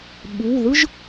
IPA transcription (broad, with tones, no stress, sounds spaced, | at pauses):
ɓ u˩˧˩ ð ɯ˥ ʒ